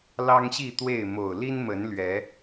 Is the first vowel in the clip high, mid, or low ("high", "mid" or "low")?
low